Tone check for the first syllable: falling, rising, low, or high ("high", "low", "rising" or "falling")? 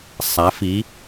rising